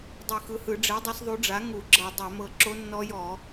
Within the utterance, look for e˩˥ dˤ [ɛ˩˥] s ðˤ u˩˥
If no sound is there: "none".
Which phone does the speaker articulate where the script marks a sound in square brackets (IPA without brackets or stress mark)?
ɛ˩˥